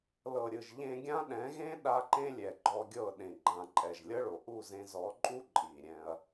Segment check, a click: present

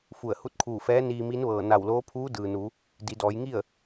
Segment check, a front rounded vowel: absent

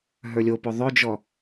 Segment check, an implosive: absent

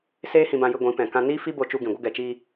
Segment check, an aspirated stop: absent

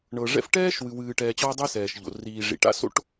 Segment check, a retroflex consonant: present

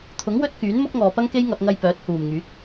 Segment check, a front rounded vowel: present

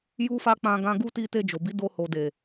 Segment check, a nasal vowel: present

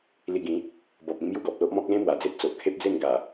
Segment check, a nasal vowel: present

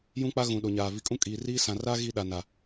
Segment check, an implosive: present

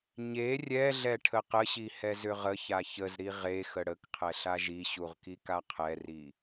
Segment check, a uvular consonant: present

